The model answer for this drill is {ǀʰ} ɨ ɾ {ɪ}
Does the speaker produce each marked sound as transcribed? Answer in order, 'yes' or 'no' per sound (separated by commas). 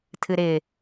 no, yes